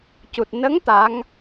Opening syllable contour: low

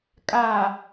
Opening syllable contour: low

